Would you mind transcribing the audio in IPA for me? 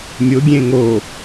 mʲ ʊ ɡʲ ẽ ŋ o

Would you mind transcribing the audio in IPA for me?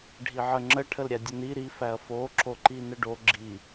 ɖʱ i ʕ ə ŋ͡ǁ ə ʈʰ ə l ɾʲ æ dʲ ə n i ɾ i f æ ɐ̯ f o ǁ o ǃ i n ə ɖ o ɡ͡ǁ i

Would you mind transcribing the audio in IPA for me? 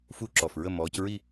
f u˥˧ ǁ ɔ˨˩ f ɹ ə˥˧ m ɔː˨˦ c ɹ i˥˧

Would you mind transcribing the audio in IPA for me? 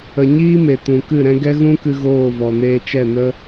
ə˨ ɲ iː˦ m e˨ t ũ˨ k ɨ˦˨ ɾ ɛ̃˦ ɡ ɛ˦ ɣ ũ˦ k ɨ˧ ɣ oː˦˨ v ɔ˨ n eː˧ t͡ʃ ɛ˦˨ n ə˦

